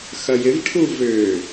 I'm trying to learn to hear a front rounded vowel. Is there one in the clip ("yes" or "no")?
yes